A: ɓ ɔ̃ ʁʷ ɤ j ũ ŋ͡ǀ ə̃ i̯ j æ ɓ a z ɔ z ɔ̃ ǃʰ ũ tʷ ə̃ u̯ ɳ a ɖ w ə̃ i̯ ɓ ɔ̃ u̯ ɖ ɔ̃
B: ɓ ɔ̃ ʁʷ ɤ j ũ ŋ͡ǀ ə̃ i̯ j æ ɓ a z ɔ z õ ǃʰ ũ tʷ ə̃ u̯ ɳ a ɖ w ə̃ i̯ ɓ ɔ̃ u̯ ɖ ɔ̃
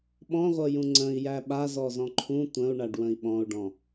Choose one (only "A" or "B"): A